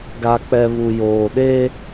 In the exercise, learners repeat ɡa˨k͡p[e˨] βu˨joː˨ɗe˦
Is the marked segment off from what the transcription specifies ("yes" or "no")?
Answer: yes